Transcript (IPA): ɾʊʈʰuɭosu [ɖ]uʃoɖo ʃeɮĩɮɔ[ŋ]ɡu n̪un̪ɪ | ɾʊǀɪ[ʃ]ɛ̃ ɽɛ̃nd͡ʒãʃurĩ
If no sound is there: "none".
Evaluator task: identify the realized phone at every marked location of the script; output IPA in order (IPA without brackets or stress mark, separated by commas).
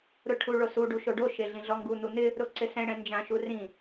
ɖ, ŋ, s